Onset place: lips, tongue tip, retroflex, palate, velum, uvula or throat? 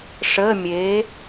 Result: retroflex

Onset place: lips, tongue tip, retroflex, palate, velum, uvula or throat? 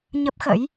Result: palate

